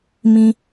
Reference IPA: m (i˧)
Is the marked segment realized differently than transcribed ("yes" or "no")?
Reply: yes